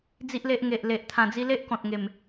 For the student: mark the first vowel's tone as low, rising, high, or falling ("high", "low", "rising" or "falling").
high